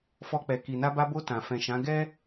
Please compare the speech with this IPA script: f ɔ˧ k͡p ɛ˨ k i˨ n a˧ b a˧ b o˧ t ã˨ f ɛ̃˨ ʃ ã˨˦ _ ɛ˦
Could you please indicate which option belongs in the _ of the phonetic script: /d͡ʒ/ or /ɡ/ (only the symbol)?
ɡ